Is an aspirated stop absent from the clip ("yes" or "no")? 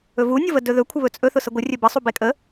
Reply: no